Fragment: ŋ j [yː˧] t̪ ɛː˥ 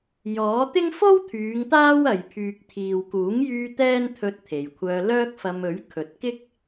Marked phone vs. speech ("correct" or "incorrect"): correct